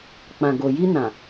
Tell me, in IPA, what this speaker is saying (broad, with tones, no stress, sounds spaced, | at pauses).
k͡p ã˨ ɡ o˨ j i˧ n ã˨